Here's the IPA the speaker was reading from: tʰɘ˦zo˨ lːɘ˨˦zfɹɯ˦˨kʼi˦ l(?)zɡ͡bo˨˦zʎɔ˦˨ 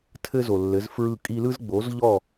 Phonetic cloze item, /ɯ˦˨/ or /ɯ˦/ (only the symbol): ɯ˦